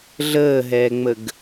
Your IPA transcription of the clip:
ɮ əː ɦ ɛː ŋ͡m ə ɡ

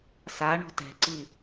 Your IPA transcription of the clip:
s a ɳ ɔ̤ t ɛ̤ ǀ i

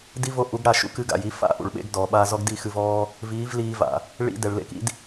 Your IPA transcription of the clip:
d i˦ v o˧ ʔ u˨˦ ɡ ɽ a˦˨ ʃ ṵ˦ k ɨ˧ ɡ a̰˨ j i˧ f a̰˦˨ ʔ ṵ˨ ɭ ɓ ḛ˨˦ ɡ d ɔː˨ ɓ a˧ z ɔ˦ ɡ d i˦˨ x ɨ˧ v ɔː˦ | v iː˨˦ v l iː˧ v a̰˨ | ɭ ḭ˧ d ɛ˨ ɭ l ḛ˦ k ḭ˦ d

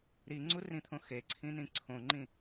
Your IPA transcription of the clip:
ɾ i ŋ͡ǀ u r ĩ t̪ʰ õ x e ǀʰ ĩ n ĩ ǀʰ õ ŋ͡ǃ ĩ

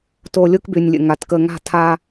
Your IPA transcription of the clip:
t o˨ lʲ o˦ k b y˨ nʲ lʲ ə̰˨ ŋ a˨ t k ə˨ ŋ a̤˦˨ tʰ a˦

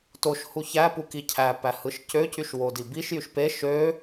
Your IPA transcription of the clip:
t o ʃ h u ç æ p u k i cʰ æ p æ h ɯ ʃ c ø c y ʃ w o d i b i ʃ j y ʃ p e ʃ ø

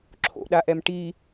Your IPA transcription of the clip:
ǁʰ o̰ ɗ a ʔ ɛ m ʈ i

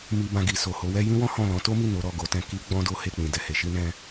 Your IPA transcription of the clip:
m i˧ b ã˧ ɡ i˨ s o˨ h o˨˦ w ɛ˦ j ĩ˦ w ɔ̃˦ h ɔ̃˦˨ l ɔ̃˨˦ t o˦ m i˦˨ n o˨˦ ɾ ɔ˦˨ ɡ o˨˦ t ɛ̃˧ k i˦ ɡ͡b ɔ̃˦ d o˦ h e˦˨ k͡p ĩ˨ d ɛ˨ h e˨˦ ʃ i˦ n ɛ̃˦

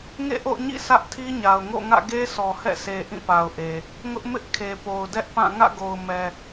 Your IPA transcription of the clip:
ŋ ḛ˦˨ ʔ o̰˦˨ ʊ̯ ɲ ḭ˦˨ s ä˦ ʔ tʰ i˦ ɲ a˨ ʊ̯ ŋ o̰˦˨ ŋ ä̰˦˨ ɡ e˦ sʰ ɔ˨ h ɛ̰˦˨ s e˨ ʔ ĩ˦˨ p a˨ ʊ̯ ʔ e˨ | ŋ ʊ˦ ʔ m ɪ˦ ʔ kʰ e˨ p o˨ ʊ̯ d ɛ˦ ʔ p ã˦˨ ŋ ä̰˦˨ ɡ o˨ ʊ̯ m ɛ˨

